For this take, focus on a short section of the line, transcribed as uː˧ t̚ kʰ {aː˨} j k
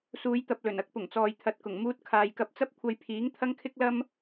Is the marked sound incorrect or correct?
correct